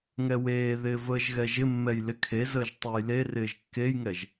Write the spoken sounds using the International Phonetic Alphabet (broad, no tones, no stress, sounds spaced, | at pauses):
ŋ ɛ w eː ð ɪː v əː ʒ ɣ ɛ ʒ ɪ mː ɛ j l ɪ kʰ e z əː ʒ tˤ e j l e r ɪː ʒ kː e j ŋ ɛ ʒ